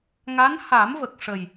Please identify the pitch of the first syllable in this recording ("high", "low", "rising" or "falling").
rising